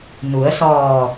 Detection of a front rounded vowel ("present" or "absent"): absent